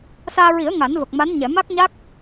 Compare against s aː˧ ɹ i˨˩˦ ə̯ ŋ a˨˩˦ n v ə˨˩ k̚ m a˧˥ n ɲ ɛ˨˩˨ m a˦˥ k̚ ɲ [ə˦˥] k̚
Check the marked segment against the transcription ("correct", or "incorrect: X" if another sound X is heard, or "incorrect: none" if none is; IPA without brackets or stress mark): incorrect: a˦˥